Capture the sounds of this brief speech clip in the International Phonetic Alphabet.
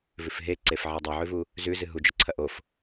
v ʉ f ɦ e ǀ e f ʕ e dˤ e ʕ ʉ v u | z ʉ z ɨ ɦ u d͡ʒ ɵ ǀʰ ɐ ʔ o f

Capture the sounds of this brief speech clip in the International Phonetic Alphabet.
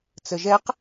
t͡s ə ʒ ɛ q

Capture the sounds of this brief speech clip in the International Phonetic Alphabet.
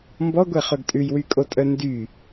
m b ɔ ɡʷ ɛ χ ɵ ɡ tʼ ʉ j w y kʼ o tʼ œ n d y

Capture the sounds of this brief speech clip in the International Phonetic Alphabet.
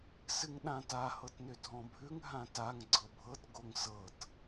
s ɨ ŋ ɗ ã t a h ɤ t n ʏ dʱ ɔ̃ bʱ ʉ ŋ ɦ ã t a ŋ ɡ͡ǀ ɤ bʱ ɤ t ɡ o ŋ s ɤ t

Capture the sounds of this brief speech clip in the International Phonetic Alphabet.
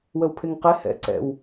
w əː w pʰ e ŋ q e h ɛ̰ ǀ ɛ̰ w

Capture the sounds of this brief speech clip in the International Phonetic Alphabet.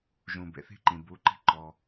ʒ ũ˩ b ḛ˩ θ i̤˥ ǃ ĩ˩ b u˩˧ ǃ i̤˧ ǃ ɔ˩

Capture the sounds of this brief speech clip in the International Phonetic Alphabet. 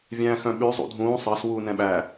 vʲ æ̃ː x œ̃ ɓ ʉ zˤ ṵ dʱ ũː sˤ ɑ s w uː n ɛ̃ ɓ æ

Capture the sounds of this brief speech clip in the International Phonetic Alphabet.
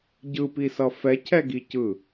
ɟ ɯ p i s ʌ f ɛ cʰ ɛ ɡ i c ɯ

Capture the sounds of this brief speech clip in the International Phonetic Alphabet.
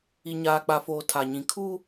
i˨ ɲ aː˨ k͡p a˨ f oː˨ tʰ a˨ ɲ ĩ˨ kʰ u˦

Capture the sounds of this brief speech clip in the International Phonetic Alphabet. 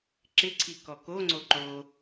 ǁ ɪ ǀʰ i k ɔ k o ŋ͡ǀ o ǃ o

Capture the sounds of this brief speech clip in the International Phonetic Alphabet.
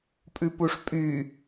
pʼ ʉ p u ʂ pʼ y

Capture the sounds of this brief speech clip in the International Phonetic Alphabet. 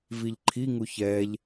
v i ʎ ǃʰ i ŋ u ç ɛ ʎ

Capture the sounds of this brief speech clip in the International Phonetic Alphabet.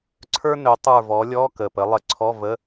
ǀʰ ə˞˥ n ø˨˦ tˤ ə˞˦˨ v ɔ˨˦ lʲ ɔ˧˥˧ k ə˨˩ p ə˨˦ lˠ ə˧˩˧ ǀʰ ɔ˧˥˧ v ə˧˥˧

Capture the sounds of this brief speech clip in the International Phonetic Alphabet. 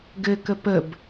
ɡ ɘ k ə p ə b

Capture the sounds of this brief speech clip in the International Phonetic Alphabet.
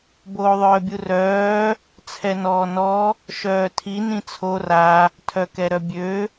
b oː ðˤ œː bʲ u r œː | t͡sʰ ɛ n ɔː n ɔ | ʃ œː tʰ i n ĩ t͡sʰ o r a | tʰ œ k ɛ ɾ œ bʲ ø

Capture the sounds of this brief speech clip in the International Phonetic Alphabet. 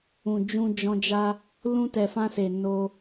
ũ˨ d͡ʒ ũ˧ d͡ʒ ɔ̃˧ d͡ʒ a˦ | l ũ˧ t ɛ˨ f ã˧ s e˨ n o˧

